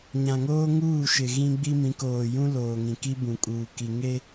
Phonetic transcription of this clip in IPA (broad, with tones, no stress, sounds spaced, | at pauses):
ɲ ã˨ ŋ oː˦ ŋ uː˦˨ ʃ ɪ˨ ɣ ĩ˦ ɡ͡b i˦ m ĩ˨˦ k oː˨ j ũ˦ l oː˨ ŋ ĩ˨ k i˦ b ũ˨ kʼ uː˨ k i˨ ŋ e˦